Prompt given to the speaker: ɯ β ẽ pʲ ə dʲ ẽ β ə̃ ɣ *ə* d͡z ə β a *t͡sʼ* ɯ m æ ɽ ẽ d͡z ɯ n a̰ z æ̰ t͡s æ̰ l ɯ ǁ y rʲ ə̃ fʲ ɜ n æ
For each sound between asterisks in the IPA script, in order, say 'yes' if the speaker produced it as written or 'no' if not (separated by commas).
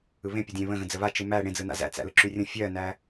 no, no